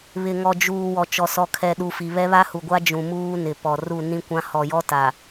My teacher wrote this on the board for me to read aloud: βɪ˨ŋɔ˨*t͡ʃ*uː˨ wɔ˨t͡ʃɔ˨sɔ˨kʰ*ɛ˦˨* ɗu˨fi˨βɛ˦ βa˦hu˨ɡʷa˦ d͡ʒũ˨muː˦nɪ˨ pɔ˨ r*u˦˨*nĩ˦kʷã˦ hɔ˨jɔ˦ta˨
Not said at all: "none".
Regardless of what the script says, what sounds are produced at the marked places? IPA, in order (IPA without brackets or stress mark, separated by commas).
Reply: d͡ʒ, ɛ˨, u˦˨